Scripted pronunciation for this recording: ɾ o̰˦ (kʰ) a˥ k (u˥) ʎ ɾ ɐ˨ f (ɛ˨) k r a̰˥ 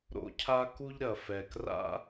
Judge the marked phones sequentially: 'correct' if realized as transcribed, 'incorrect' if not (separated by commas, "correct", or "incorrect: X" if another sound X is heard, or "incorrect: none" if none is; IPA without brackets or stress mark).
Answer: incorrect: cʰ, correct, correct